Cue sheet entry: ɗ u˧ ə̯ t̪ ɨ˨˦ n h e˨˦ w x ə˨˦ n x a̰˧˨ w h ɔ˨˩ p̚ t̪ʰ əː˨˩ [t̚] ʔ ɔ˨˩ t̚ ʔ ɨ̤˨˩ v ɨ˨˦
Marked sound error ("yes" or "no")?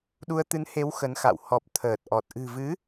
no